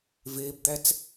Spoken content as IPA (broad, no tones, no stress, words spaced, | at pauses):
veːbd̪æt͡s